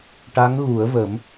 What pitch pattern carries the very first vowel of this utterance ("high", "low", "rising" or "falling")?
rising